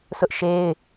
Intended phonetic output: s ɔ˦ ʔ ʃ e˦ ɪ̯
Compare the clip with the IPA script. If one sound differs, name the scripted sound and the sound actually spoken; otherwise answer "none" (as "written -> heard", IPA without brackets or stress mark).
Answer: ɔ˦ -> ʊ˦